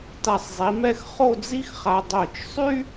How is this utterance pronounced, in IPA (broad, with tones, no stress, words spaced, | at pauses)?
ta˧˩sˤzˤi˩˧mɛ˥˧x χo˥˧d͡zi˥xχa˧ dˤœ˧˩t͡ʃsˤy˥